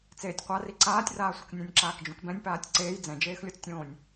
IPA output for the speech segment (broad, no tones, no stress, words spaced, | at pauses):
t͡seːtʲqʷari ǀaːtʲraːsʷʌknʲãnʲ ǁaːkd͡ʒũkbɛ̃nʲpaːtʲ ǀeːj d͡zɛ̃d͡ʒeːxlʲot͡stʲõːnʲ